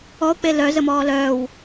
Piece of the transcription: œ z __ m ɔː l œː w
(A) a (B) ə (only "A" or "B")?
B